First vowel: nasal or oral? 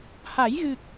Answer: oral